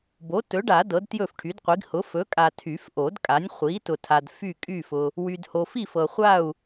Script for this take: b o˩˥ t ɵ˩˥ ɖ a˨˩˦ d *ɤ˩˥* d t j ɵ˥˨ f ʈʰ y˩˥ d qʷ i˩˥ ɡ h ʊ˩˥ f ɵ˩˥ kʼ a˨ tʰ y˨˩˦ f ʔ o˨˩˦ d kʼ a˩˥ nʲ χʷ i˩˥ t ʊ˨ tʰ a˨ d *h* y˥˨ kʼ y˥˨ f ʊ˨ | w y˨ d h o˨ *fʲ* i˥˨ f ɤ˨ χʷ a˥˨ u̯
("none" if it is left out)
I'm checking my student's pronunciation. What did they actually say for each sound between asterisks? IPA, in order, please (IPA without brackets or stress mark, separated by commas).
ɤ˩˥, f, f